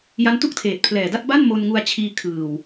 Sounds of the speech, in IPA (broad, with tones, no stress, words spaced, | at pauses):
ja˦˥ntu˥˩k̚tʰeː˨˩t̚ pʰlɛː˨˩da˥˩t̚ba˥˩n mo˧nŋu˧a̯ t͡ɕʰiː˧ kʰɯː˨˩w